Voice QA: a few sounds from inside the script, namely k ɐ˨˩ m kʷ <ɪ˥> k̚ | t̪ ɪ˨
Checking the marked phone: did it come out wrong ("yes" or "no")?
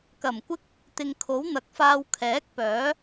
no